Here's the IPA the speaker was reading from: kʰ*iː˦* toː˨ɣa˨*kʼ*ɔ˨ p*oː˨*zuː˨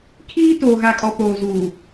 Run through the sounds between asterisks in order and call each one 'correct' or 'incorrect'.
correct, correct, correct

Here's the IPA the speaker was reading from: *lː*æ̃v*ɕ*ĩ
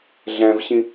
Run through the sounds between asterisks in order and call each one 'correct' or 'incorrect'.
incorrect: ɮ, correct

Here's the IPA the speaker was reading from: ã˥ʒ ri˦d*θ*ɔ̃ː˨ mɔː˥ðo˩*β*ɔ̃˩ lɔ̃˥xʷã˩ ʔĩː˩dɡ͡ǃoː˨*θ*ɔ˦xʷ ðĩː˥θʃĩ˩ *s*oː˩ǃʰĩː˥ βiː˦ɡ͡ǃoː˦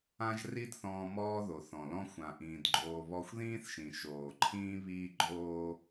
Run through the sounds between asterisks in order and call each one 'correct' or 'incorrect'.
correct, incorrect: θ, incorrect: β, incorrect: ʃ

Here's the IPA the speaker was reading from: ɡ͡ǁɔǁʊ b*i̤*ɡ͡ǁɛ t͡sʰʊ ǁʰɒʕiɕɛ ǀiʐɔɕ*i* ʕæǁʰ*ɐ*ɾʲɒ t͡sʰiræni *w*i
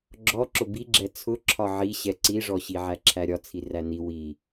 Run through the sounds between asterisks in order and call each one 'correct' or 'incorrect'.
incorrect: i, correct, incorrect: æ, correct

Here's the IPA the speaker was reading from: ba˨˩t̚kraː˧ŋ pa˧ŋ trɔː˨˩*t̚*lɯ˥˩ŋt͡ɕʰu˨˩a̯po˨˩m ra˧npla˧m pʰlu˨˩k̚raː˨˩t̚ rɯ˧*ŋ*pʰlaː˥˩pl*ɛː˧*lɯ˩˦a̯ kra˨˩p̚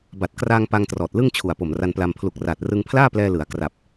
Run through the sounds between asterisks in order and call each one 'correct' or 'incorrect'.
correct, correct, correct

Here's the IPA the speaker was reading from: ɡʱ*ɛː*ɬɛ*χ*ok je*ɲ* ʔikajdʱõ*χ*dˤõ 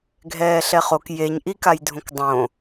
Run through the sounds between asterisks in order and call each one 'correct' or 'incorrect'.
correct, correct, correct, incorrect: k

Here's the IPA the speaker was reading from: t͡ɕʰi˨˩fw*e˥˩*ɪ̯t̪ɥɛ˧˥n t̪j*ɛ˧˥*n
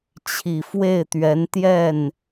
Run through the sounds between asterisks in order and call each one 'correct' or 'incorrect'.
correct, incorrect: ɛ˥˩

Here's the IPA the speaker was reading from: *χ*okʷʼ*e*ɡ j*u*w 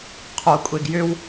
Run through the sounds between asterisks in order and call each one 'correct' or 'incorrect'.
incorrect: qʰ, correct, incorrect: ʏ

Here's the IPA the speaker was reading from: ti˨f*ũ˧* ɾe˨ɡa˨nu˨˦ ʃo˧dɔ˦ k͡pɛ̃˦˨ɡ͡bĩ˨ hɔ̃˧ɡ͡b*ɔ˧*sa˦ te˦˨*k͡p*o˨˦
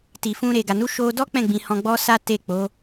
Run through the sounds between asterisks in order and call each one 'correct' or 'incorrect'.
correct, incorrect: ɔ˦, correct

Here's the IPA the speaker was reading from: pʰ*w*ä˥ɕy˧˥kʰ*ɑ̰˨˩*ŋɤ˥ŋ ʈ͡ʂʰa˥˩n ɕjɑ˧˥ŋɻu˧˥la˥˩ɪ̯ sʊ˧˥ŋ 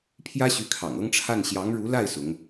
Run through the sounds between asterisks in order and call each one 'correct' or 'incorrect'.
incorrect: j, correct

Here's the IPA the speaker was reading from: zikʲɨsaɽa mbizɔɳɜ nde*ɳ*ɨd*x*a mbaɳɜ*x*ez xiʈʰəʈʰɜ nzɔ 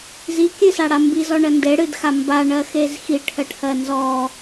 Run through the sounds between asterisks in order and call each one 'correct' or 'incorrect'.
incorrect: ɽ, correct, correct

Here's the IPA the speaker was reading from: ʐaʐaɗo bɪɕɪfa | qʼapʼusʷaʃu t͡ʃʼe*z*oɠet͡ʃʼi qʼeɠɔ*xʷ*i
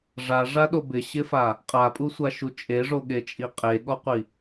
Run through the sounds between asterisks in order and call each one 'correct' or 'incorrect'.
incorrect: ʐ, incorrect: qʷ

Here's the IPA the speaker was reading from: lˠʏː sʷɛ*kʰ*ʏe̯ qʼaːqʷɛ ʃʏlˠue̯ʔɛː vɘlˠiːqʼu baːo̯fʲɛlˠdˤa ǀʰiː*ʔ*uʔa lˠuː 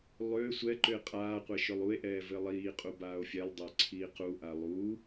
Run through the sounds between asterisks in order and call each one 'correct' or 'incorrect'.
incorrect: ǃ, incorrect: q

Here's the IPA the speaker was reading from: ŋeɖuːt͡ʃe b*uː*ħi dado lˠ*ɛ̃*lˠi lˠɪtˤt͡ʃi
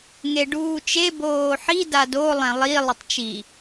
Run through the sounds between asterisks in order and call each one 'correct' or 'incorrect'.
incorrect: oː, correct

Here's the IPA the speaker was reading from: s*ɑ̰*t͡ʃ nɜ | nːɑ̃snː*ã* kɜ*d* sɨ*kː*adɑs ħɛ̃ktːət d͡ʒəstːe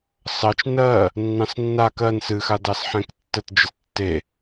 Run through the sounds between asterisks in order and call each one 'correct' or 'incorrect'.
incorrect: ɑ, incorrect: a, incorrect: n, incorrect: x

